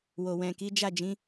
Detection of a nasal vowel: present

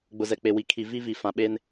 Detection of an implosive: present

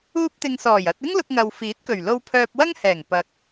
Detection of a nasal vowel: absent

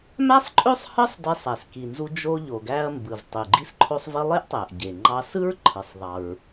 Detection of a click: present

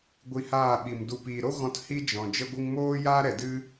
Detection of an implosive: present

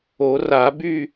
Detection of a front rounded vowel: present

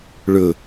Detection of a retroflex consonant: present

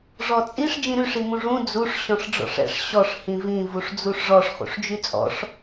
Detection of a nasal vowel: present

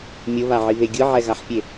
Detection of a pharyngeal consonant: present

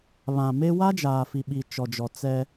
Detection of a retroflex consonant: absent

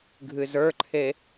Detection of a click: present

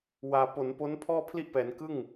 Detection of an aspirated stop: present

